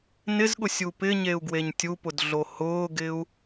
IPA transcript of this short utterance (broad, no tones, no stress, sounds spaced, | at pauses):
n ɪ z ɠ ʊ sʲ u p ɪ ɲ e u̯ ɡ w e ɲ tʲ u p ʊ d ɮ o h ʊː ɡ ɪ u̯